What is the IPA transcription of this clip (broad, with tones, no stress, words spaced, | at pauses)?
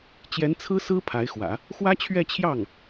t͡ɕjɛ˧˥nt͡sʰɹ̩˥ sɹ̩˥ pʰa˧˥ɪ̯xwä̰˨˩˦ | xwä˥t͡ɕʰɥɛ˥˧ t͡ɕʰjɑ˥˩ŋ